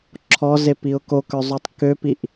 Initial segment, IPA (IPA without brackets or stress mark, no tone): ǁʰ